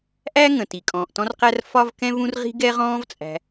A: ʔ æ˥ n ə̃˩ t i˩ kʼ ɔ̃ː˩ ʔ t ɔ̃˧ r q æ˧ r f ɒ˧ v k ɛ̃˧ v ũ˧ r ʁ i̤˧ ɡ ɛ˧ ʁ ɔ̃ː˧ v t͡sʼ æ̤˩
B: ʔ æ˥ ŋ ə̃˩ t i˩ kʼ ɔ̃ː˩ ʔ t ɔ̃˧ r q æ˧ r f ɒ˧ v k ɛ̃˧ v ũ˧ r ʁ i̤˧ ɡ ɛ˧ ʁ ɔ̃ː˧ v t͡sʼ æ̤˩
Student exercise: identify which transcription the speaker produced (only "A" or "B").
B